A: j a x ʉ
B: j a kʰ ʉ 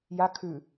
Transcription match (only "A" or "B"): B